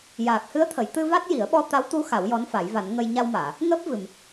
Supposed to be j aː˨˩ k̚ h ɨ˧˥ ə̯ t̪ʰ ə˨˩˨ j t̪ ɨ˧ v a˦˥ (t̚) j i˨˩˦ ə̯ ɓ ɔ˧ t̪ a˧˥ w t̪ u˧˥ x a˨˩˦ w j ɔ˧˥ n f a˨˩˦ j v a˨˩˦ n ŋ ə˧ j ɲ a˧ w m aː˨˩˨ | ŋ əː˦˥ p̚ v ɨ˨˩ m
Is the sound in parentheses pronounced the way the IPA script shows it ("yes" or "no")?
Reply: yes